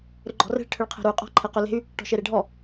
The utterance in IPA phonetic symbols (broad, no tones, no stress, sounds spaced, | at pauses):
ɾ ʏ ɡ͡ǃ ɔ̤ r e̤ ɭ ʈʰ ʏ ɭ qʰ e̤ ɾ u y̯ qʼ ɔ̤ ǃʰ e q ʏ l e̤ y̯ | ʈ ɔ̤ ʃ e ɾ e ɖʱ ɔ